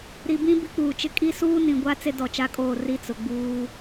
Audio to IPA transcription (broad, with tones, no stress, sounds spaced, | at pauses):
ɾ i˨ b ĩ˦ b i˦ k͡p uː˨ t͡ʃ ɪ˦ kʼ i˦ s uː˦ n ĩ˨ ɡʷ a˦ t͡s e˦ d ɔ˨ t͡ʃ a˦ kʼ oː˦˨ r i˦ t͡s ʊ˨ ɡ͡b uː˦